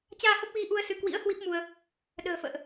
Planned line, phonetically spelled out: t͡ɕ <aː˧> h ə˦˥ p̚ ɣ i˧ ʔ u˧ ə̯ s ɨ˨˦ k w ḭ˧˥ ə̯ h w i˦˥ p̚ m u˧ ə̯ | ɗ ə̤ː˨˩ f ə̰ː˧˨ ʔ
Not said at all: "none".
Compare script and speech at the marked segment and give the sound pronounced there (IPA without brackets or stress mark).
aː˧